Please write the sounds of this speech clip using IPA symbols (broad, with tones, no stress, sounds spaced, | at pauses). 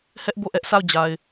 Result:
h ɛ˦ ʔ b o˦˨ ʔ ɛ˦ ʔ sʰ a˦˨ ʊ̯ d͡ʑ a˨ ɪ̯